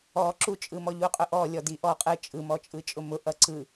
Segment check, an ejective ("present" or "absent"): present